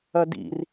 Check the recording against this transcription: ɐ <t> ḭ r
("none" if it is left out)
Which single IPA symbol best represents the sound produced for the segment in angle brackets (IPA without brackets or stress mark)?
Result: d